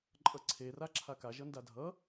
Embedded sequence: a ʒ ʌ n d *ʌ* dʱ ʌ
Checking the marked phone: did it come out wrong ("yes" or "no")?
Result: yes